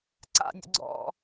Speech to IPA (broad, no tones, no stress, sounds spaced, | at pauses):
ǀ a̰ nʲ ə̰ ɡ͡ǀ ɔ̰